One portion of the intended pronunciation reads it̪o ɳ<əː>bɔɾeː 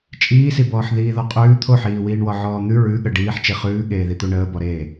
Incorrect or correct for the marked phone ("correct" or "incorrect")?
correct